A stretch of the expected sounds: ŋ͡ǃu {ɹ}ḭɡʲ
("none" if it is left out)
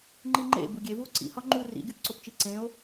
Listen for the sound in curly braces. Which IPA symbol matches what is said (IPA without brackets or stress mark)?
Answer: r